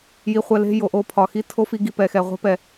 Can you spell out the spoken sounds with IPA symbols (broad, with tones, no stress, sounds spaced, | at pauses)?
j i˨ χʷ ɛ˨ l e̤˦˨ j o˨ ʔ o˦˨ pʰ ɒ˨ x i˦ tʰ o˦ f i˦ ɡ i˧ p ɛ˨ x ɛ˨ ʁʷ e̤˦ p ɛ˧